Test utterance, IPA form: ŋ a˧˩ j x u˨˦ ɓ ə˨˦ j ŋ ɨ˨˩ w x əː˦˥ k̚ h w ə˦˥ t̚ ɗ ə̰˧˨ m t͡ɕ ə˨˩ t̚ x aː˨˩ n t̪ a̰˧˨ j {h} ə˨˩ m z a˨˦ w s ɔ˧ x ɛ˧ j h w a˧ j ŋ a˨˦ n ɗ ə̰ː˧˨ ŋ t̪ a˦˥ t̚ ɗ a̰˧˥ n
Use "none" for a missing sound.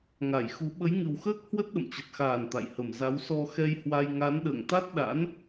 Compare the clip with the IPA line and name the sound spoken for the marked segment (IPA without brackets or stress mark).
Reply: h